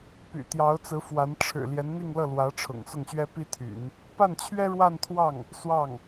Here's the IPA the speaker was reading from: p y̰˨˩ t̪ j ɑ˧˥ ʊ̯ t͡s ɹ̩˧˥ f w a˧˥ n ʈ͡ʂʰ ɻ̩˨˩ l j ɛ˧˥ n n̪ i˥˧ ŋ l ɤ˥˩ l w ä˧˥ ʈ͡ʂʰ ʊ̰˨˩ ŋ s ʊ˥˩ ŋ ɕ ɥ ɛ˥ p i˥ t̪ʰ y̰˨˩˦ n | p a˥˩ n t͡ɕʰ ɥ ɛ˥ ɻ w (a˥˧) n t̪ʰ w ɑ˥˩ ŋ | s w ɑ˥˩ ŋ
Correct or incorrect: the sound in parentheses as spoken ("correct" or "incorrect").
correct